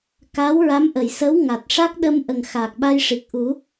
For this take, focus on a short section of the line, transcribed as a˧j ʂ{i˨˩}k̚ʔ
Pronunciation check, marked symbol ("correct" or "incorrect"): correct